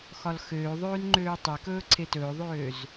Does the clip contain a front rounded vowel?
yes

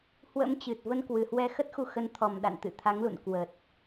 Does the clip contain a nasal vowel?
no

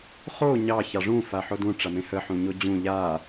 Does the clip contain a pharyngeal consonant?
yes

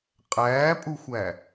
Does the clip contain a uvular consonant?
yes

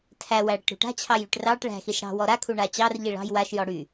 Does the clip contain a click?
no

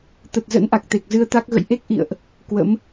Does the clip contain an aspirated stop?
no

